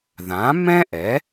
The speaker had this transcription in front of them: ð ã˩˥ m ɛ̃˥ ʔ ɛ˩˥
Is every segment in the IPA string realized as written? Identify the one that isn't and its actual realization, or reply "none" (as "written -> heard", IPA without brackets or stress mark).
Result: none